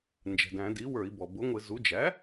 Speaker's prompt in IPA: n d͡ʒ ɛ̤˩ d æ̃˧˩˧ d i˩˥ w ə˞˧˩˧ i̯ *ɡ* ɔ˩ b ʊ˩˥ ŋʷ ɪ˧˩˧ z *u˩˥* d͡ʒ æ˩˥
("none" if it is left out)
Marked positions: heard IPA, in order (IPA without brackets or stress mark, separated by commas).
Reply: b, u˩˥